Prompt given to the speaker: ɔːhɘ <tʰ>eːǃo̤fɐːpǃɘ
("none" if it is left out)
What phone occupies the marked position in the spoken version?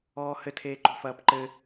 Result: tʰ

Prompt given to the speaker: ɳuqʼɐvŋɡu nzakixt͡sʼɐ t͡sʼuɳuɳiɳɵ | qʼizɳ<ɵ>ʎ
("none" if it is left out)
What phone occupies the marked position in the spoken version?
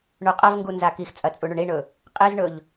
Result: ɵ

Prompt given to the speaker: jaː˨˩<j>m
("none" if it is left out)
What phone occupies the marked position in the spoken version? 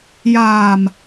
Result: none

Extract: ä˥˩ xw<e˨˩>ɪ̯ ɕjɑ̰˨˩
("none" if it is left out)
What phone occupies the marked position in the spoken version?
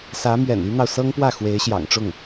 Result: e˧˥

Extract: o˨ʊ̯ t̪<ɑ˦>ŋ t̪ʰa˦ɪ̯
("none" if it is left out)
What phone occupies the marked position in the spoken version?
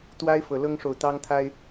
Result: ɑ˦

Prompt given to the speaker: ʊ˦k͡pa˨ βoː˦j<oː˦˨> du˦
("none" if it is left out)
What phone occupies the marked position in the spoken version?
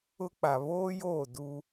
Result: oː˦˨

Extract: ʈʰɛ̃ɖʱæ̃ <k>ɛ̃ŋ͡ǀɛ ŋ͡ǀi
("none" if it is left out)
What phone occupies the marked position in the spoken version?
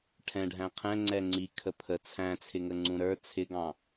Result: qʰ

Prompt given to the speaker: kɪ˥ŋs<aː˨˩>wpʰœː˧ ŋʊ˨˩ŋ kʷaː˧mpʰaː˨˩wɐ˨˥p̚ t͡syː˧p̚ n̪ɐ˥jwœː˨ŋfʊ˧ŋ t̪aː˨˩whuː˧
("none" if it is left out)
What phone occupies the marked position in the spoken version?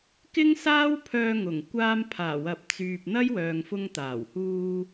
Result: aː˥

